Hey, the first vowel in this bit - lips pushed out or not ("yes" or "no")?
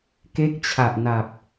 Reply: no